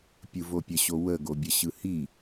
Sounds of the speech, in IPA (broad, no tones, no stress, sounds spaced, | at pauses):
pʲ ɯ v o pʲ ə ɕ o w ə ɡ o bʲ ə ɕ ɯ h i